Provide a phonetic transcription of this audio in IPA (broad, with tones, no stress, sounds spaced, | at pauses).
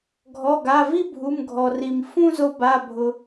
ɡʱ ɔ˩˧˩ ɡ a˩˧˩ v i˥˧ bʱ u˩˧˩ m ɡʱ ɔ˩ r i˩ m f ũ˥˧ z o˧ b a˩˧˩ bʱ ʊ˩